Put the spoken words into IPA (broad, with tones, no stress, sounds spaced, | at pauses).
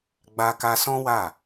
ɡ͡b a˧ k a˧ s ɔ̃˦ w a˦˨